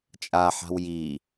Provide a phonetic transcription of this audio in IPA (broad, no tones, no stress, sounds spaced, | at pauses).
t͡ʃʼ a ħ a̤ w j i